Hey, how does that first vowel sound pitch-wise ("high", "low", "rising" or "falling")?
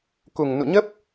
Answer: low